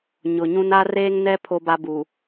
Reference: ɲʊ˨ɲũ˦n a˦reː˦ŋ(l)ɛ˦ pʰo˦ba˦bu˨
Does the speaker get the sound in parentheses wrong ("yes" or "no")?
yes